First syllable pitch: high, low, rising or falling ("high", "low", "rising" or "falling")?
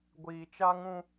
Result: low